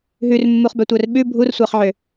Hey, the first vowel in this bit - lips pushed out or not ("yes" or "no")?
yes